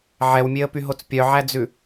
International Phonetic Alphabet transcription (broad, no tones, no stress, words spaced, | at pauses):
ʕɛwmʲeə̯pyɦot͡s pʲœʕæd͡zʉ